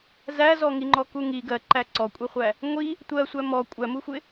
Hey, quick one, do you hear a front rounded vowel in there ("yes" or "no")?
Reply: no